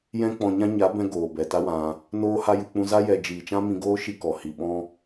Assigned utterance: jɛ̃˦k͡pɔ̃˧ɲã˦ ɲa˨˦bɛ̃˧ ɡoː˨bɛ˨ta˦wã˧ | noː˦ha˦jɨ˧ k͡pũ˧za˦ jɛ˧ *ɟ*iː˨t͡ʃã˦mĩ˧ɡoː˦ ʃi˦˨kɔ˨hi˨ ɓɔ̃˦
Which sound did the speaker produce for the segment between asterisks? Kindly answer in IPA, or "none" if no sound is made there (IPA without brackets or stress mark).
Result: d͡ʒ